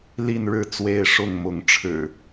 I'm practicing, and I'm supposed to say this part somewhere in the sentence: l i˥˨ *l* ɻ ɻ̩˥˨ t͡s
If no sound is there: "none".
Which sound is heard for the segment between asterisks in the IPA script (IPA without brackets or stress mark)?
n